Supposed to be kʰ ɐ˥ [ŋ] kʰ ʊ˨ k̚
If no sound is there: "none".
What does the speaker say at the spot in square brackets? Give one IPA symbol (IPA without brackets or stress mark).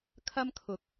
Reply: m